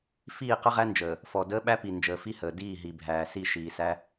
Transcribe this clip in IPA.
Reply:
f iː˦˨ q ə˦ ʁ æ˦ n d͡ʒ əː˨ | f ɔ˨ d əː˦ ɓ æ˦ p i˨ n d͡ʒ əː˨ f i˦ h əː˨ d iː˦˨ ɦ i˨ bʱ æː˨ s i˦˨ ʃ iː˨ s æ˦

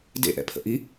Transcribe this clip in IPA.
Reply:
d ḛ ʔ ɛ̰ pʰ ə̰ ʔ i

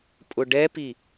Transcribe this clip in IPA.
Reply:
pʼ ʊ ɖ ɛ p i

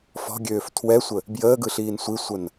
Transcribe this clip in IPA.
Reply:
f ɔ̤ ɡʲ øː f tʰ w ɛ sʷ ə | b j əː ɡ ɯ ɬ iː n sʷ i sʷ ə n

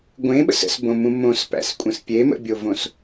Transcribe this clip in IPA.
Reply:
ɡʷ ẽ ɓ ə̰ s ə̰ s b õ m ũ m õ s p æ̰ s kʷʼ ə̃ s pʲ e m ə̰ bʲ o v õ s

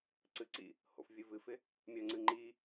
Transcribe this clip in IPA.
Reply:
ǀ ɨ ǀ ḭ | h o̰ f vʲ ɨ v ɨ f ɪ | mʲ œ ŋ͡ǀ ɨ ŋ͡ǃ i

